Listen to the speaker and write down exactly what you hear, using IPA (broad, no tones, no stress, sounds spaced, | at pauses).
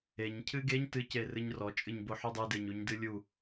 e ɲ cʰ ɨ ɡ e ɲ t ɨ c e r ɨ ɲ r ɔ t͡ʃʼ ɨ ɲ b o ħ u dˤ ɨ d e ɲ u ɲ d ɨ lʲ u